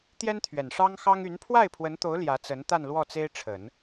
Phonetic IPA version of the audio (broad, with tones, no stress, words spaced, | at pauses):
t̪jɛ˥nt̪ʰɥɛ˨˩n ʂɑ˥ŋ xɑ˥ŋ y˧˥n pʰwa˥˩ɪ̯pʰwə˧˥nt̪o˧˥ʊ̯ ljä˧˥t͡sə˧˥n t̪a˥˧nlwɔ˥˩t͡se˥ɪ̯ ʈ͡ʂʰə˨˩˦n